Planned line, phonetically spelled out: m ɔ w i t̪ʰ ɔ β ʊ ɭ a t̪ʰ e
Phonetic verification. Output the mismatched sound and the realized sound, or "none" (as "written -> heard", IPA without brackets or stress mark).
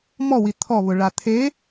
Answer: none